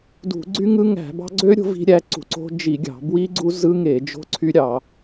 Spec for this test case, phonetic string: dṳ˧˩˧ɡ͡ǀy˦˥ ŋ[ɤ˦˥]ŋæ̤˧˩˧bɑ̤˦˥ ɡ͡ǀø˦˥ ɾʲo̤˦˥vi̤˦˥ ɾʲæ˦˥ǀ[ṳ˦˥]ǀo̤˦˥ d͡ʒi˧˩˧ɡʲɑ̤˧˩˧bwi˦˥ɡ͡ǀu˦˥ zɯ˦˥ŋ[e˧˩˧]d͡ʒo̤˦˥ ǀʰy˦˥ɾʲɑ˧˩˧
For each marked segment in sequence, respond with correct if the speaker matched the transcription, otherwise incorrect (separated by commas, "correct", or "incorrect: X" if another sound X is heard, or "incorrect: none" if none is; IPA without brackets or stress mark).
incorrect: ɯ˦˥, incorrect: ṳ˧˩˧, correct